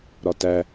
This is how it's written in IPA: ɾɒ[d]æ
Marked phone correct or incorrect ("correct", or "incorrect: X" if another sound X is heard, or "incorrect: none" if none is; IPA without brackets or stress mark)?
incorrect: t